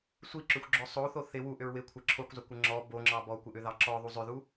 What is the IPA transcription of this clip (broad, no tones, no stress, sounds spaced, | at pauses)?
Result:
sʷ i ǁ ʏ xʷ ɡ͡ǁ ɔ sˤ o θ o θ ɪ w u ʔ ʏ ɹ w ɪ kʷʰ ɪ ǁʰ o kʷ zˤ ʏ kʷ ə ŋ͡ǁ ɔ b o ŋ͡ǁ ɑ b ɔ kʷ ɪ ʔ ʏ ð ɑ ǁ ɔ ðˤ u zˤ ʏ ð u